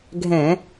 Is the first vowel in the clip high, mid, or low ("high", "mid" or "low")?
mid